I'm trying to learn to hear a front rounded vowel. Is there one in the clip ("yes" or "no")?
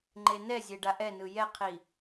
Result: no